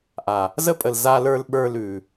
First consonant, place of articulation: glottal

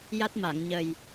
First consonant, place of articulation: palatal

